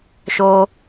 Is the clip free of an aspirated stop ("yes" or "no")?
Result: yes